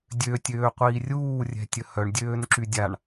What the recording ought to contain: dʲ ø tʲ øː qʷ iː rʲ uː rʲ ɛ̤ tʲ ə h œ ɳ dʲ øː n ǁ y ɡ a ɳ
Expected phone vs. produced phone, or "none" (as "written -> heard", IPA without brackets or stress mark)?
ɡ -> dʲ